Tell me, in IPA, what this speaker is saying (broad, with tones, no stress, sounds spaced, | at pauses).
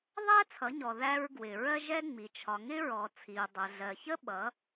ðˤ æ˥ t͡sʰ ʌ˩˧ ɲ ɔ˩ ð æ˧ ɹ ɡ w ɪ˩ ɹ ɜ˥ ʒ ɛ˥ ŋ͡m i˩ t͡ʃʰ ɒ˩ ŋ ɪ˧ ɹ ɔ˩ t͡sʰ i˩ u̯ dˤ ɜ˩ ɮ ɜ˩ ç ə˥ ɓ ʌ˩˧